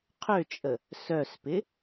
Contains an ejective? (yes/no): yes